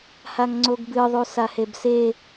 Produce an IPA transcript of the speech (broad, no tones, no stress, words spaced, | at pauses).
haŋŋ͡ǀoɡbɨ ðˤusahebse